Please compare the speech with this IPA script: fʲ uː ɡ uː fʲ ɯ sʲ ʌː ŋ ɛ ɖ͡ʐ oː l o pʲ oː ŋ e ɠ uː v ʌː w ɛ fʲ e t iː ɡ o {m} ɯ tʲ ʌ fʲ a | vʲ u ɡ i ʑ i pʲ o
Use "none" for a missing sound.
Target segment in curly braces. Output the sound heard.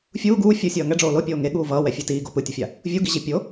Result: p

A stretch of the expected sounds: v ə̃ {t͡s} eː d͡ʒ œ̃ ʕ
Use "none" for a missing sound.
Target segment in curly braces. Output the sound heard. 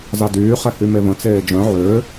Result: t͡s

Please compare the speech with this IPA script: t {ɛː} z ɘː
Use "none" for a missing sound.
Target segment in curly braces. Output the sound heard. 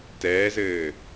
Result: ɛː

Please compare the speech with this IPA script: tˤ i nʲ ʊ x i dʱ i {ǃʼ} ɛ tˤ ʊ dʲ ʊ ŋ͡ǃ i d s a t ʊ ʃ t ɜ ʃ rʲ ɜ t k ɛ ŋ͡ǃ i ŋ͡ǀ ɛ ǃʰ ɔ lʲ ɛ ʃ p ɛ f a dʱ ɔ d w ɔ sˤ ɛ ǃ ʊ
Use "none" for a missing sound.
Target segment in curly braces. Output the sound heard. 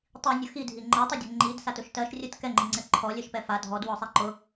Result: ŋ͡ǃ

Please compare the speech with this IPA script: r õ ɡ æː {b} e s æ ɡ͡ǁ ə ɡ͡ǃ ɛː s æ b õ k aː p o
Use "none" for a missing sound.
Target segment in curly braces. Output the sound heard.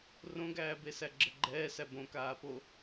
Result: b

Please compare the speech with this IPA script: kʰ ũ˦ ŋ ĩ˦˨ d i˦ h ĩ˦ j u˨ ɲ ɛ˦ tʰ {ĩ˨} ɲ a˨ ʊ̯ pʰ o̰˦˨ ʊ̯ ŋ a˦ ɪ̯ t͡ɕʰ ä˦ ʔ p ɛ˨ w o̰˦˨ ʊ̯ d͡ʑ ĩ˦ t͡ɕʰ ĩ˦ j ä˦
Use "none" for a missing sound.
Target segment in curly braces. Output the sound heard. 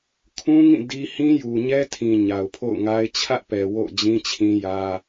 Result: ĩ˨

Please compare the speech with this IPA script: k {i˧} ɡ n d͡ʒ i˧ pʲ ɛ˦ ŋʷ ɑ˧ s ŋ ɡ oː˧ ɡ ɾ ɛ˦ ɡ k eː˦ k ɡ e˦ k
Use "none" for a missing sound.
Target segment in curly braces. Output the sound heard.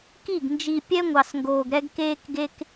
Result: i˦˨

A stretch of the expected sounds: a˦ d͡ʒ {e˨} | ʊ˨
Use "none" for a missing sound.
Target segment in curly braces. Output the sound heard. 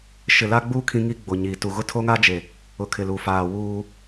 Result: e˨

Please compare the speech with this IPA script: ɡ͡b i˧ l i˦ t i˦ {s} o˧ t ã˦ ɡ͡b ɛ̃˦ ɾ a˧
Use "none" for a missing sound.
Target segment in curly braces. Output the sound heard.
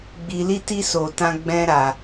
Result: s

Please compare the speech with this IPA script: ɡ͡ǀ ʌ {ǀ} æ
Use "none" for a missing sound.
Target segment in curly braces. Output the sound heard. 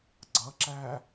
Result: ǁ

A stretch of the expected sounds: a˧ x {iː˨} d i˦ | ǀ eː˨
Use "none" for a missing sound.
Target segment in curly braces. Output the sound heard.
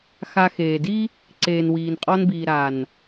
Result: eː˨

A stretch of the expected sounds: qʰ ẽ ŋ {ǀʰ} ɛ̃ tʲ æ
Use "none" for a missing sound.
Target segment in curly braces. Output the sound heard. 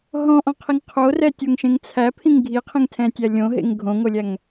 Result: tʰ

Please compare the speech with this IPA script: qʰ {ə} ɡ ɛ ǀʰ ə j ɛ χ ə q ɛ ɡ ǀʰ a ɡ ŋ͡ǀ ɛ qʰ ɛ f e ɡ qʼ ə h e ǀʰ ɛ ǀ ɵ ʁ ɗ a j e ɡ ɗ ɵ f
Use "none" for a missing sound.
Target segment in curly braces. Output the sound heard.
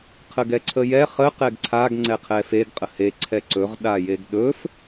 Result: ə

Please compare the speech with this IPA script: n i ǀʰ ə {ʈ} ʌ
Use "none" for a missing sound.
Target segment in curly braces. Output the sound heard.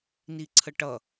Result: ʈ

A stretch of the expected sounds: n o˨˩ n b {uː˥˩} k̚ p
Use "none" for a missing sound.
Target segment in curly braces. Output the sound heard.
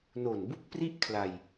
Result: u˥˩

